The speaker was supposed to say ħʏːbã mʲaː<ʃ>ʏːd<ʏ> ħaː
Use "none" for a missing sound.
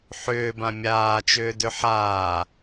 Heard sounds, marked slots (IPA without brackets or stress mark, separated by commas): t͡ʃ, ʏ